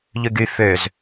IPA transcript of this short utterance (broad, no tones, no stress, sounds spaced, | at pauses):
ʎ ʉ ɡ y f ø z